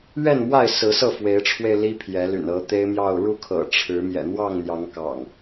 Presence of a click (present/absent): absent